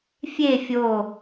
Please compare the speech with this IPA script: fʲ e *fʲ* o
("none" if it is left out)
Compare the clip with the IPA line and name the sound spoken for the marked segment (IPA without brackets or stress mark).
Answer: fʲ